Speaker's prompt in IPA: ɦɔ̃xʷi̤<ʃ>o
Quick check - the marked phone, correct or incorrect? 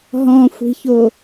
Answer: incorrect